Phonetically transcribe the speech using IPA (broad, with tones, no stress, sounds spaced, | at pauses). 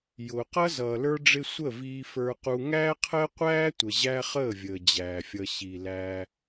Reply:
j ʊː˨ q ʌ˦ z ʌː˨ l ə˞˦ ɖ͡ʐ ɪ˦ sʷ ə˦˨ v iː˧ f ə˞˧ q u˧ ŋ æː˦ qʰ əː˦ qʷ æː˦ tʷ ə˨ ʑ æ˦ χ əː˦˨ vʲ əː˨ d͡ʑ æː˨ fʲ ʌ˧ ɕ i˨ l æ˧